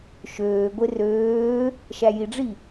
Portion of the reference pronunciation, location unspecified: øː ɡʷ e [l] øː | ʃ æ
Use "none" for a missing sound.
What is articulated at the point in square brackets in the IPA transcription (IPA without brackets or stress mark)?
r